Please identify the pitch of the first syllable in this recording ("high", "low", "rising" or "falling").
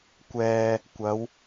low